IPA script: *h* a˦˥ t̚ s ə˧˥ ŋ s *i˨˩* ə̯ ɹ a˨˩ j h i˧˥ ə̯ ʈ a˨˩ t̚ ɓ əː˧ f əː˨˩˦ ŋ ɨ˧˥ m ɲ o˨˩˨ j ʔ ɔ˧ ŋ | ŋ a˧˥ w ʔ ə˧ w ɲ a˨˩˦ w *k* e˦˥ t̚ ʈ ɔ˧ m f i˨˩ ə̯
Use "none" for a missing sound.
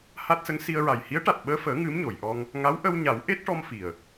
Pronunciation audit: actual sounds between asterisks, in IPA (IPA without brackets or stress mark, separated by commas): h, i˧, ʔ